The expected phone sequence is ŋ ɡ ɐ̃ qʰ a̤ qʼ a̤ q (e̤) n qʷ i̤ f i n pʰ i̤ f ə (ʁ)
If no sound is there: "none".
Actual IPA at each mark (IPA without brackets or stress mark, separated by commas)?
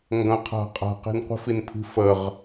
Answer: e̤, ʁ